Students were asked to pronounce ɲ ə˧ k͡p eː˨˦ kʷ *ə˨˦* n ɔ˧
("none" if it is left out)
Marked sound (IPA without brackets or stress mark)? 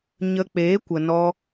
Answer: ə˨